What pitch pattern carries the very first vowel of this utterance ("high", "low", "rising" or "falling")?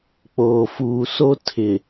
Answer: low